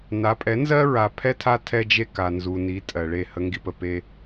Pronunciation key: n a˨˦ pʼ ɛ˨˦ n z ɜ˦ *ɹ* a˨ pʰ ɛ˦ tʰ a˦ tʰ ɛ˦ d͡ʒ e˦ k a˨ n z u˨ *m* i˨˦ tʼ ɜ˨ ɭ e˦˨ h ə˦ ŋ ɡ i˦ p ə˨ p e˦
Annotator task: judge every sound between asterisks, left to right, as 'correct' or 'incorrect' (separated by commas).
correct, incorrect